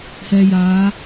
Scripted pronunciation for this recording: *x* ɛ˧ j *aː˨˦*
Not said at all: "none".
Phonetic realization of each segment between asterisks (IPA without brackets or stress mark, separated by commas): h, aː˨˦